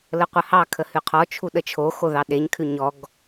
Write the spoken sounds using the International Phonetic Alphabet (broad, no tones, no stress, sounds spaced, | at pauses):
l ə qʷ ə h ɑ kʰ ə h ʉ qʰ ɔ t͡ʃʰ u ɗ ə t͡ʃʰ o x o ð ɑ ɗ e ɲ kʰ ʉ ɲ ɔ ɡ